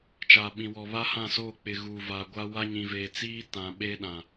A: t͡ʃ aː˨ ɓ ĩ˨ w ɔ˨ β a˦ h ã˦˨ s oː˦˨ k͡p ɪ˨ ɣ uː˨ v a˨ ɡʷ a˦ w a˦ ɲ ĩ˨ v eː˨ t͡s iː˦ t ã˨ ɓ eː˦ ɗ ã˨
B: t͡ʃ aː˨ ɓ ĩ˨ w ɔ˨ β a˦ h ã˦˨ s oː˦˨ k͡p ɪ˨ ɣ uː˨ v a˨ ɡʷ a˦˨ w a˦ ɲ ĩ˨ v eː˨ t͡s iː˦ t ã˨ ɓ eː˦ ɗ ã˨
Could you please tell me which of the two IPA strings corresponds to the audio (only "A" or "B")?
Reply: A